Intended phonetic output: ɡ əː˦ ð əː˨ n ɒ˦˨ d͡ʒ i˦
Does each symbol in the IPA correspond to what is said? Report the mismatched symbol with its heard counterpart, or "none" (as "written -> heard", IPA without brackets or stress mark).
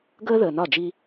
none